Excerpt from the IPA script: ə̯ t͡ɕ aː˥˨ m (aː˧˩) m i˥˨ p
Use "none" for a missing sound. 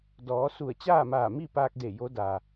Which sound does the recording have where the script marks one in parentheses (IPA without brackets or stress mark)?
aː˧˩